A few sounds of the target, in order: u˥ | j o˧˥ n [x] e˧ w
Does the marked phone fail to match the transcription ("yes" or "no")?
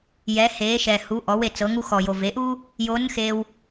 no